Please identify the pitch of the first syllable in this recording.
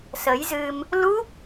rising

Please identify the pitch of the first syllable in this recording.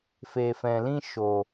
low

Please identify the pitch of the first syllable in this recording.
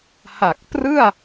low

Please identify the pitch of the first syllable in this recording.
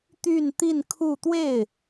falling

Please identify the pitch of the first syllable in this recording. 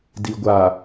low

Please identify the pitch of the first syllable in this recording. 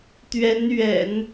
rising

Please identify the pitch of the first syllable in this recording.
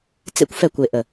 high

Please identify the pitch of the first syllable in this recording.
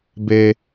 low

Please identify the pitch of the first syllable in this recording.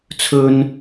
high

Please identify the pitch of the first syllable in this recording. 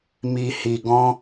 low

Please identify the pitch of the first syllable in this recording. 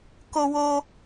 high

